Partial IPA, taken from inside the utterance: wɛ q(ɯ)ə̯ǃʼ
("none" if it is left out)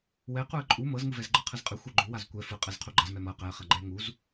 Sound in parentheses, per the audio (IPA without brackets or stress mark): u